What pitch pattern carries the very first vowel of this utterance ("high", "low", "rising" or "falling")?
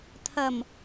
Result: low